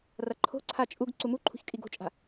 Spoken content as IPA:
r ɐ ǃʰ o̤ ǀʰ a t͡ʃʼ u ɡ ǀ u m u ǃʰ ṳ ç kʼ i ɡ o̤ t͡ʃʼ a̤

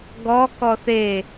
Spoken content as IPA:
ɡ ɔ k ɔ θ e

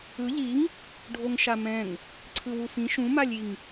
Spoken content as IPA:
ɯ ʎ i ŋ | ɖʱ o ŋ ʃ a m ɛ̃ ŋ | ǀʰ ɯ w u f ĩ ʃ ũ m a lʲ i ŋ

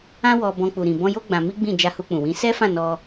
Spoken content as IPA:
ã˦ w ɔ˧ b ɔ̃˧ k͡p u˨ ɾ ĩ˨ b ɔ̃˧ j o˦ ɡ͡b ã˧ m i˦ ɡ͡b ĩ˦˨ d͡ʒ a˧ h u˧ k͡p ũ˨ w ĩ˨˦ s ɛ˦ f ã˦˨ n ɔ˧

